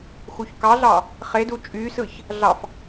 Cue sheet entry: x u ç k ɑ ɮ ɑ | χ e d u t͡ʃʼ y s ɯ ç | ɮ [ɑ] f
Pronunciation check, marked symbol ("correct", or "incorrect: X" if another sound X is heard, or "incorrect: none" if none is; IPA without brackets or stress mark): correct